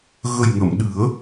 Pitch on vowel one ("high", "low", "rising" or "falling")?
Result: low